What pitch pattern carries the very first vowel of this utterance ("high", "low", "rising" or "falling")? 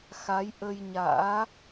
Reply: rising